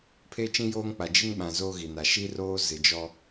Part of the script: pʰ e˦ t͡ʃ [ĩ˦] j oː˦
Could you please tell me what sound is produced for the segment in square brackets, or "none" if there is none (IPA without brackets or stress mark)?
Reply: ĩ˦